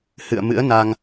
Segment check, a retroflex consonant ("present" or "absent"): absent